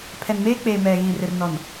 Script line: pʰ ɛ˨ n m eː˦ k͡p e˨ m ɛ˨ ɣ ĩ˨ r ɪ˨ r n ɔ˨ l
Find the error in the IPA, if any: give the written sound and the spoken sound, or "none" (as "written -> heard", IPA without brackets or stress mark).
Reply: l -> n